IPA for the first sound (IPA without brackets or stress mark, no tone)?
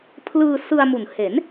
pʰ